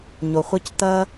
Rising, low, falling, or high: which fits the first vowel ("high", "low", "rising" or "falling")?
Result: low